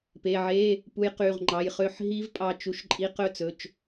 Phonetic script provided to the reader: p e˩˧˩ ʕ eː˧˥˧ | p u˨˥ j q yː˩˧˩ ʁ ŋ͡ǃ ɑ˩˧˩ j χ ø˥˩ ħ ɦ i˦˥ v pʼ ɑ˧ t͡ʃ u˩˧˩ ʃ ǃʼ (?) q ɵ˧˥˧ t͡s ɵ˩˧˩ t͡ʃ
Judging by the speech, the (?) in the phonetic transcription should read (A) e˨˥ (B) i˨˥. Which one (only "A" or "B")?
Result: B